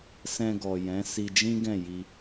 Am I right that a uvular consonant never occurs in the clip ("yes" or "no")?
yes